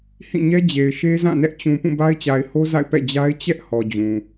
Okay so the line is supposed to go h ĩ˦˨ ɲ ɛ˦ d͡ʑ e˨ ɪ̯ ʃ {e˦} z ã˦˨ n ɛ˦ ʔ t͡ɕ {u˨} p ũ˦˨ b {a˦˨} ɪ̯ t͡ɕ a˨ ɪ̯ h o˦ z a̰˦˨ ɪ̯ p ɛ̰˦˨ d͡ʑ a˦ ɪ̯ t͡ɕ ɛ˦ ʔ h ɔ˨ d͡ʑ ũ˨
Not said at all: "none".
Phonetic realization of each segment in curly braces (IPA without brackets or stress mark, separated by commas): e˦, ũ˨, a˦